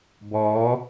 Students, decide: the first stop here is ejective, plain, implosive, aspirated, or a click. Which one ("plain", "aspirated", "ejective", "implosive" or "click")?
plain